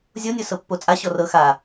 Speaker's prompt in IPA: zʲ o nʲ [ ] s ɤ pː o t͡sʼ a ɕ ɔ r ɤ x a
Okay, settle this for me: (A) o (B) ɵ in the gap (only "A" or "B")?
A